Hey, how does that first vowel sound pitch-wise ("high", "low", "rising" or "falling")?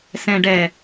low